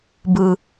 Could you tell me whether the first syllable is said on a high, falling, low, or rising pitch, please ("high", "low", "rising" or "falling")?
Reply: low